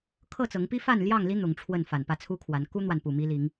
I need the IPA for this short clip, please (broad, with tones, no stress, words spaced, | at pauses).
kʰɤ˥˨t͡sɤ˨˦ŋpi˦ fa˥˨nljɑ˥˨ŋli˦ n̪ʊ˨˦ŋʈ͡ʂʰwə˥˨n fa˨˩npä˥˨t͡sʰu˦kʰwa˨˦n ku˦n̪wa˨npu˨˩ mi˦li˨˦ŋ